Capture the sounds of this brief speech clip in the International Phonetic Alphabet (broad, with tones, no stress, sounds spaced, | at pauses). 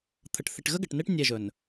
t̪ʰ ə˨ ʈ θ i˨ ʈ ɣ ə˦ ɡ ə˨ ʈ n e˦ ʈ nʲ e˦˨ ʒ ɵ˨ n